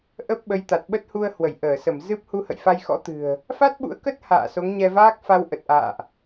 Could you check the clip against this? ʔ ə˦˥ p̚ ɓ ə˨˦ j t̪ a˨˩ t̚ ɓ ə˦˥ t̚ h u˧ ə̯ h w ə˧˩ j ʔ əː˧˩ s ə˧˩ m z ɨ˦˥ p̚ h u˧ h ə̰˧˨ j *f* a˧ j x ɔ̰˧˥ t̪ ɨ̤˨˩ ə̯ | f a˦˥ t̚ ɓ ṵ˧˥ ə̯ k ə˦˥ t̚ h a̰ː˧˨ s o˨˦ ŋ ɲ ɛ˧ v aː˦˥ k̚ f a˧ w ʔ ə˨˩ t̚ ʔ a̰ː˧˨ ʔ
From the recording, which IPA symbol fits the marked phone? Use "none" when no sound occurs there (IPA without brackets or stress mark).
f